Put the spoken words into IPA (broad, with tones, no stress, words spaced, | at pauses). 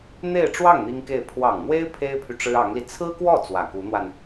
n̪e˥˧ɪ̯ ʈ͡ʂwɑ˥˩ŋ n̪i˥ŋke˥˩ɪ̯ pʰwɑ˨˩ŋn̪we˥ɪ̯ pʰe˥ɪ̯pʰy˨ ʈ͡ʂɻ̩˥ɑ˧˥ŋli˧ t͡sʰɹ̩˥kwɔ˥˩ t͡swä˨˩ku˧˥n̪wa˧n